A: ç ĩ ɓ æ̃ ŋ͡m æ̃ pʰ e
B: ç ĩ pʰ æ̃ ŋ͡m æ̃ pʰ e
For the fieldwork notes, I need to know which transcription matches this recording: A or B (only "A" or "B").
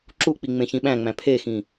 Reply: A